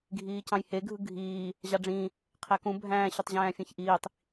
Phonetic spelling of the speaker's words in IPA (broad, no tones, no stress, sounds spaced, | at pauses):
ɡʱ iː c ɑ̃ j h e ɡʱ ɯ ɡʱ iː | ʑ ɑ ɖ͡ʐ ĩː | qʰ æ k ũ bʱ æ̃ː ɕ ø tˤ ʑ æ̃ː fʲ ẽ ç ʔ iː tˤ